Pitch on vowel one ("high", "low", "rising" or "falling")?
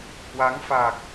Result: rising